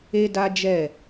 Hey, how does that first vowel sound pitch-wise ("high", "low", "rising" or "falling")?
high